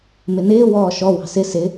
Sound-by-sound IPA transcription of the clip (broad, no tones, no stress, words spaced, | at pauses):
mɪnɪː wɔːʃɔ wɑ̤sɪ sɪ